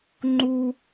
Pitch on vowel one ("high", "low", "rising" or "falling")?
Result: high